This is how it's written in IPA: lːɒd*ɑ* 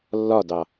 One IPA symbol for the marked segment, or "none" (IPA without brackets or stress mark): ɑ